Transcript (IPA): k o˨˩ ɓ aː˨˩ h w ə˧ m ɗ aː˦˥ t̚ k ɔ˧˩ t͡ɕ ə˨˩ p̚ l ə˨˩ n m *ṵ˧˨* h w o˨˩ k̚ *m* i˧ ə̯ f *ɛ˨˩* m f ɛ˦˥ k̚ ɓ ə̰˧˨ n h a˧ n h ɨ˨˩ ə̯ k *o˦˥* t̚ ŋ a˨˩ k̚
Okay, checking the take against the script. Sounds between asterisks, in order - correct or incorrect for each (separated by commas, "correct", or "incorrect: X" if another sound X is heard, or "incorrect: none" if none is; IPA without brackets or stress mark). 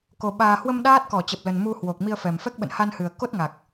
incorrect: u˧, correct, correct, correct